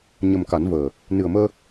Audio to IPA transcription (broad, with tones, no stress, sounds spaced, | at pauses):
ɲ ə˨˩ m k a˨˩˦ n v əː˨˩ | n ɨ˨˩ ə̯ m əː˧